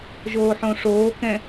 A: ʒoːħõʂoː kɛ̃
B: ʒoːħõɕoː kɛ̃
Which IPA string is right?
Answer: A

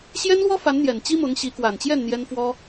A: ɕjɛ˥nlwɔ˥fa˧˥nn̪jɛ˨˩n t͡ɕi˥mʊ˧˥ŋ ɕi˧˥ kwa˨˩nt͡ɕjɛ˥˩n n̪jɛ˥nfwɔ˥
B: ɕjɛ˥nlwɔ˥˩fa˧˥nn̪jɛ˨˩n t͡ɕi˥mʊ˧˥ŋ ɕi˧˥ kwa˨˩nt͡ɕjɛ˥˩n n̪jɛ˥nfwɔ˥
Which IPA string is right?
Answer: A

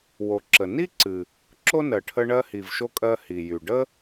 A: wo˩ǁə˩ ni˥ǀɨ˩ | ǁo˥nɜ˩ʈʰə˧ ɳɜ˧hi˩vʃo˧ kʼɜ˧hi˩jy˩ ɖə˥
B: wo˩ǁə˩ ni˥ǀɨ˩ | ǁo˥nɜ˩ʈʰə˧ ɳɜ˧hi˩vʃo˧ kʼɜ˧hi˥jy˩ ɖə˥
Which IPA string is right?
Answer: A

